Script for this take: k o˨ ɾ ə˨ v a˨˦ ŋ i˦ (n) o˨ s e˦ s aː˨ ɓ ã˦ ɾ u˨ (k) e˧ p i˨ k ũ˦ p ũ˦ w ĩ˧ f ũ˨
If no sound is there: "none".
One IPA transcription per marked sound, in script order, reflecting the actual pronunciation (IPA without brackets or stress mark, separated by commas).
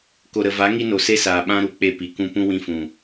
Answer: n, k͡p